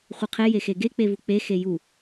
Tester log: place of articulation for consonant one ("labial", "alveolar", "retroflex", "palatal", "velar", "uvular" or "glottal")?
uvular